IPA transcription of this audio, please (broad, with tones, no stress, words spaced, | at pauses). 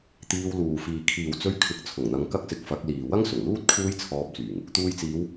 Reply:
t̪iː˧wluː˨fiː˨ kʰiː˨wt͡sɵ˧ɥkʰɪ˨˥k̚t͡sʰʊ˨˩ŋ n̪ɐ˨˧ŋkɐ˥k̚ sɪ˧k̚fɐ˨˥k̚liː˨ wɐ˥ŋsʊ˨˩ŋluː˥t̚ kʰuː˥jt͡sʰɔː˧p̚t͡syː˨˩ŋ | t̪uː˧jt͡siː˨˧w